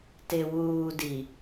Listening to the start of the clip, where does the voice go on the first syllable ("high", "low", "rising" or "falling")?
low